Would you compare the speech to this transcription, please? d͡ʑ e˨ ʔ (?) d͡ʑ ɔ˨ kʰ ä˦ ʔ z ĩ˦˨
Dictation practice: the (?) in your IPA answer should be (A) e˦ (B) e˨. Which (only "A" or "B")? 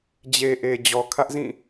B